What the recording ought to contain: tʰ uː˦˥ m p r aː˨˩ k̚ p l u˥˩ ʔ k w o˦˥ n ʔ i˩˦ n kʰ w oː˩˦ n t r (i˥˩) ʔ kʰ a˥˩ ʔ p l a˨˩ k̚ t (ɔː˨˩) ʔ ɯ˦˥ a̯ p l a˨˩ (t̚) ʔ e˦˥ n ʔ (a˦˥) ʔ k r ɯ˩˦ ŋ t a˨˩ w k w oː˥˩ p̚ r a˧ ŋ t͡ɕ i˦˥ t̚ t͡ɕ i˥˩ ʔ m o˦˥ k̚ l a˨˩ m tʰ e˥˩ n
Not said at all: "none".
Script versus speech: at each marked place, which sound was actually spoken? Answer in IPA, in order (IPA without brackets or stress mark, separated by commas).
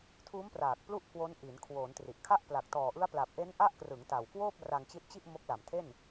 i˨˩, ɔː˨˩, p̚, a˦˥